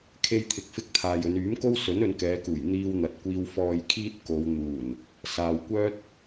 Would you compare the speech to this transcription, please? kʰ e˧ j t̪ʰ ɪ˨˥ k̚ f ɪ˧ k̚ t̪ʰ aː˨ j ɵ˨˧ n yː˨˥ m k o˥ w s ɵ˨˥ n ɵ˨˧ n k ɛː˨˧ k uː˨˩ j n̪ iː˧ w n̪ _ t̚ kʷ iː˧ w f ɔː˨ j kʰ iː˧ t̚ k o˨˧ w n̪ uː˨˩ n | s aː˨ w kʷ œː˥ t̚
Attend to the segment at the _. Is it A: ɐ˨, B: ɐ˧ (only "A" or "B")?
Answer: A